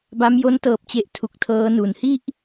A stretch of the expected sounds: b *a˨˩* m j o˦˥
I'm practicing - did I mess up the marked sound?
yes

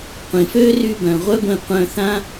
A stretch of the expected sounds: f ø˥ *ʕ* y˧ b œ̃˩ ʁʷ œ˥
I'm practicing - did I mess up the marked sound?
yes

